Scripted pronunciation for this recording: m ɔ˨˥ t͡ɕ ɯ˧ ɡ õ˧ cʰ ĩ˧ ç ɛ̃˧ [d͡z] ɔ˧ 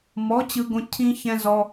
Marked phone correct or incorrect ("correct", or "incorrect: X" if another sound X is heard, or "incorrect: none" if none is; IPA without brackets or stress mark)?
incorrect: z